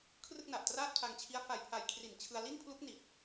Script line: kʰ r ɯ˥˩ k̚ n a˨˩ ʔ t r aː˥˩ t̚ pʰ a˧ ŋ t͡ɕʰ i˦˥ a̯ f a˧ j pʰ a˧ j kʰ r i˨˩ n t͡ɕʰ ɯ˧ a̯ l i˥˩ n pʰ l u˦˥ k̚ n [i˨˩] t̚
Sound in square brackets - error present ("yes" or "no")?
no